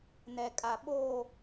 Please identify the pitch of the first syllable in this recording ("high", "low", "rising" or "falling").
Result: low